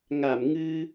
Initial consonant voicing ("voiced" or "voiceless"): voiced